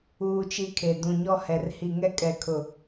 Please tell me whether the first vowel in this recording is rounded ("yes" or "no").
yes